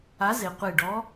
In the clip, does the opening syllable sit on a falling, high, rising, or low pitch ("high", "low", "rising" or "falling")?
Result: rising